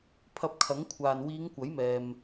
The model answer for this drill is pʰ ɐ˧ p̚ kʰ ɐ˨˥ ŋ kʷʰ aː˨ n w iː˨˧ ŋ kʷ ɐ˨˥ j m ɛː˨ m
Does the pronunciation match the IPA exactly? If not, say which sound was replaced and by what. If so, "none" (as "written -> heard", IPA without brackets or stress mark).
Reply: none